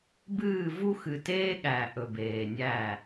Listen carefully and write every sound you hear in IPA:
bɨː˦˨vu˦ xɨ˨teː˦ɠæ˨ ʔɵ˨beː˨nʲæ˦˨

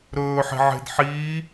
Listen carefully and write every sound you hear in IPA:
ɾɵːħe̤ʕe̤d ħiː

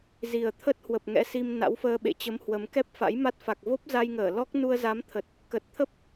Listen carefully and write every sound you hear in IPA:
zi˨˩ə̯t̪ʰə˦˥t̚hwə˨˩p̚ ŋɛ̰˧˥si˧m na̰˧˥wfəː˧ɓḛ˧˨t͡ɕə˨˦m hwə˨˦m kɛ˦˥p̚fa̰˧˥jma˦˥t̚ fa˨˩k̚vo˦˥p̚za˧jŋəː˧˩ lɔ˦˥k̚ nu˧ə̯za˨˦mt̪ʰə˨˩t̚ | kə˨˩t̚t̪ʰə˦˥p̚

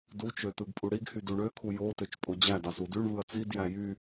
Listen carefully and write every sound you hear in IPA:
dut͡ʃø tɯɡpʼuɽiɡhy duɳøkʰu jotøt͡ʃ pʼod͡ʑædɑs udyɳvɯɐ̯ t͡sidjæ jy

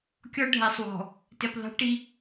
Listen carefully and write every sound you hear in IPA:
kʲɔ˦ɖʱɛ˨sˤwɔ̤˨ | tɪ˨pðˤe̤˦ʈi˦

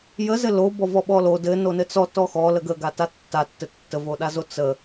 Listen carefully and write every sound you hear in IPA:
jəzɘ lobɔvɔ ɓɔlo dɘ nonɘt͡sɔ tɔxɔ ləɡə ɡatatːatːɘ tːəvoɗazo t͡sə

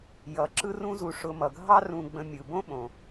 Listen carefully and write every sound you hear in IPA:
jʌ˩ ǁɯ˦rũ˦zu˨ ʂʊ˨mʌ˩ ɡʱɑ˦rũ˨ɡ͡bə̃˨ mʲɯ˩ bõ˥ɓõ˩

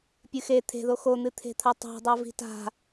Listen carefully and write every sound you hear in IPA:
pʲɨxe t̪ʰe̤ðo xon̪ɨt̪ʰe̤t̪ʰa tˤa̤dˤa vi̤ta̤

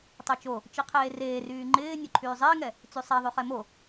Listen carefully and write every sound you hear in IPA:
tˤøt͡ʃo | t͡ʃiqʰeːreː ryːŋ͡ǃɪː nʲoǃʰyːzˤɪːŋɛ | t͡sysˤɛðˤy χɛmo

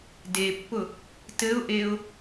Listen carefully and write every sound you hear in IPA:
depːʊ | tɘʊ̯ʔeʊ̯

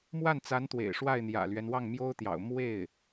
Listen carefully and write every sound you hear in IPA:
mwa˥˩nt͡sa˧˥nt̪wḛ˨˩ɪ̯ ʂwa˥˩ɪ̯ n̪jä̰˨˩lɥɛ˦n wɑ˥˩ŋmjo˥ʊ̯t̪jɑ̰˨˩ʊ̯ mwe˥˩ɪ̯

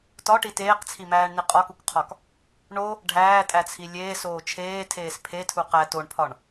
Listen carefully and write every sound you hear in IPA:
tɒʈi teːqt͡sʰimæːɳni qʼɒkukqʰɒk | ɳo | ɖʱæːtʼæt͡sʰi lʲeːsoː t͡ʃʰeːtʰeːs pʰetʰu qæ toɳpʰɒɳ

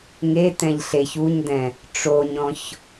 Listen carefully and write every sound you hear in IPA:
ŋetɛ̃ʎ ɬeç uɲdɛ̃ | ʈ͡ʂoɲɔ̃ç

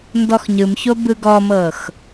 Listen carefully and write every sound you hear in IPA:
ndɔxɲɯmço bɯɡɔmɤx

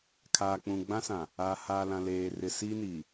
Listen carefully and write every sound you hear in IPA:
kʰaː˨k͡pũ˨ ɡ͡bã˦sã˨ | aː˨haː˨lã˨ leː˨rɪ˨ siː˦niː˨

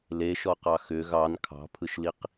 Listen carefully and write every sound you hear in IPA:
leʃɔqɑ xʏ ɣɑn kʰɑ̤pʰɯʃliq

